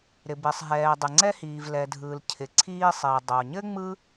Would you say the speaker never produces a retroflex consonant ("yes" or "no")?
yes